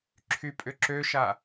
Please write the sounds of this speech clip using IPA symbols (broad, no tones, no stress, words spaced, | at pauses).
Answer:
ǁʰypʼʏǁøʃa